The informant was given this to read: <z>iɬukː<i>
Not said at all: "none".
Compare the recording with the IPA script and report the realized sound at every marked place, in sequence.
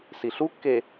s, e

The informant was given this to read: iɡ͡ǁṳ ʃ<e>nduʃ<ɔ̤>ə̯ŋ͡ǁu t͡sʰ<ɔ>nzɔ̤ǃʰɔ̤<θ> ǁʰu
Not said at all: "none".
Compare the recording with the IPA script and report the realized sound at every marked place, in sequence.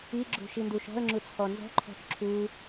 i, ɔ̤, ɔ, θ

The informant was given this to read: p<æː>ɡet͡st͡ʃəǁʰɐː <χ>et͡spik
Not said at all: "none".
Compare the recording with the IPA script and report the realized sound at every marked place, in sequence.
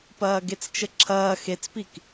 ɐː, x

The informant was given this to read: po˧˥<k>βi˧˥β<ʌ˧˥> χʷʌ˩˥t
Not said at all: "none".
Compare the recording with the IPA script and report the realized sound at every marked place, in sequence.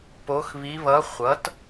x, ʌ˧˥

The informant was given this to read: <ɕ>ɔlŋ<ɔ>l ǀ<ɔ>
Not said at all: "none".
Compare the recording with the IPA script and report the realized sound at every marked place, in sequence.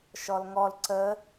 ʃ, ɔ, ə

